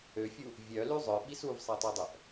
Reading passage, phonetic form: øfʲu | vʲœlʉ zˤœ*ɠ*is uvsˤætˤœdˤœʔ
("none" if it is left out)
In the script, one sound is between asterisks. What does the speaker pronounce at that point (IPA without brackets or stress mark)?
ɓ